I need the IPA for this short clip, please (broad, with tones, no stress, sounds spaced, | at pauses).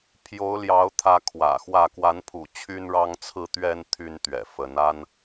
pʰ j o˨˦ ʊ̯ l j ɑ˨˦ ʊ̯ t̪ʰ ä˨˦ kʰ w ä̰˨˩ x w ä˥˨ k w a˨˦ n pʰ ṵ˨˩ t͡ɕʰ y˦ n ɻ ɑ˦ ŋ t͡sʰ ɹ̩˦ t̪ ɥ ɛ˦ n t̪ʰ y˦ n t̪ ɥ ɛ̰˨˩ f ə˨˦ n a˦ n